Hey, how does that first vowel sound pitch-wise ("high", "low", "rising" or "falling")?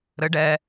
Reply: rising